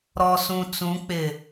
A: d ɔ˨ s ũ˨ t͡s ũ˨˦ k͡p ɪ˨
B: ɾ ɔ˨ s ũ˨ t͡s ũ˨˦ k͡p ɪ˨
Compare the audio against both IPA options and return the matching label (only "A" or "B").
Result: B